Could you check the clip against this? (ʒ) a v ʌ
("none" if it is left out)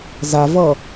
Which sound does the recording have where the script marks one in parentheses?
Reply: z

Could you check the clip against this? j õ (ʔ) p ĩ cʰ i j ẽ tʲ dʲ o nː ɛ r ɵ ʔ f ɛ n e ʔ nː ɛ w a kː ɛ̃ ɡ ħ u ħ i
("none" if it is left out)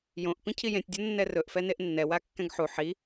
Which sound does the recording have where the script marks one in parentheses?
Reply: ʔ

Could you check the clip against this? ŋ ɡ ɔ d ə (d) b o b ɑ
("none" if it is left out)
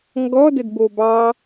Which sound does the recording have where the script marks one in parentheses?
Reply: d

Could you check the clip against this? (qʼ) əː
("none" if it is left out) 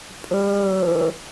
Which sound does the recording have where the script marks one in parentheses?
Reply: pʼ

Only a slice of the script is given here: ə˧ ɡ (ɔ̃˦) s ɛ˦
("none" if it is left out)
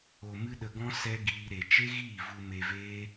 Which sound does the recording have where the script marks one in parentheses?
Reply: ɔ̃˦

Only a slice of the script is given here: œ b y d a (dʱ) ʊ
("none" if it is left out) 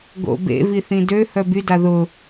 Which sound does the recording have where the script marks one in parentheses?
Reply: ð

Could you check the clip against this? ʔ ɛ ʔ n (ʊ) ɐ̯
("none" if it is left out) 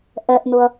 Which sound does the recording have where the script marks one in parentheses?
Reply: ʊ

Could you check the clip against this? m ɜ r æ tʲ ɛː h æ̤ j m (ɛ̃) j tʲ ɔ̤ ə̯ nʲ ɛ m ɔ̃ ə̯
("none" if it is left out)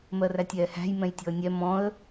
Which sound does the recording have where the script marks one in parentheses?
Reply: ɛ̃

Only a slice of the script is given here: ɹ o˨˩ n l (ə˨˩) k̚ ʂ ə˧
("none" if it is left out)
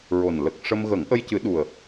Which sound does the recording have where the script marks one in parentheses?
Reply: ə˨˩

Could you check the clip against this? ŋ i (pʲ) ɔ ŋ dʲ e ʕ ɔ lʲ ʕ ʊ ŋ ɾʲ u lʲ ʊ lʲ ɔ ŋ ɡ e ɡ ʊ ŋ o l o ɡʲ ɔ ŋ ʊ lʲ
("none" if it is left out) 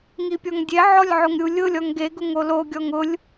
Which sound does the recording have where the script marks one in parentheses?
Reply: pʲ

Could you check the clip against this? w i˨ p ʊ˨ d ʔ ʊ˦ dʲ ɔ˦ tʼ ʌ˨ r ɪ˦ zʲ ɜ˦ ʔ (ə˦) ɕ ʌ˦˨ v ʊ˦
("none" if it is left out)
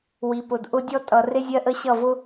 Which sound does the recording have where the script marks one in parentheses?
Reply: ə˦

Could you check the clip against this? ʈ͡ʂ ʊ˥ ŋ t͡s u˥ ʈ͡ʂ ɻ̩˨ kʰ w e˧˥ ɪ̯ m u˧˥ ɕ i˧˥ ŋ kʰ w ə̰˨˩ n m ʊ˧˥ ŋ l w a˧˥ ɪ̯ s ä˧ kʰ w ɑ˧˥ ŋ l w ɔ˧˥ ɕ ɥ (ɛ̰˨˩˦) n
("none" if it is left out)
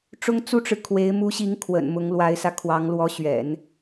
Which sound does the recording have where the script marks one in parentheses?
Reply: ɛ̰˨˩˦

